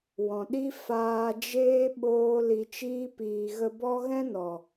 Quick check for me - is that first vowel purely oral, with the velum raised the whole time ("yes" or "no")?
no